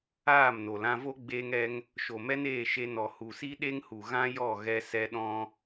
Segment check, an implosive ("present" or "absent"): present